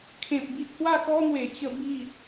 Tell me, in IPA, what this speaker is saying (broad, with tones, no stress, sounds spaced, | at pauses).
kʰ ẽ˨ p̚ b i˦ ʔ h w a˥˧ k ɔ˦ n̪ w e˨˩ t͡ɕ ə˧ b i˥˧